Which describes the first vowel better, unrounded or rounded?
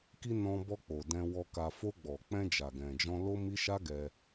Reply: unrounded